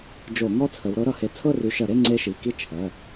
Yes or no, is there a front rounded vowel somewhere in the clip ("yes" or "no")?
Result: yes